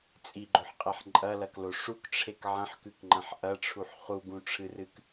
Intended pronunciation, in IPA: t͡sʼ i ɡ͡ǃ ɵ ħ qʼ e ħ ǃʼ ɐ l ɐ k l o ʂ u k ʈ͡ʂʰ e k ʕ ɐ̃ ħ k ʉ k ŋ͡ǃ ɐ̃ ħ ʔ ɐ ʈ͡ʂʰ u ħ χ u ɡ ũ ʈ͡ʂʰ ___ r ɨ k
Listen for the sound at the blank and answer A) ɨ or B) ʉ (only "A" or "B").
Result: A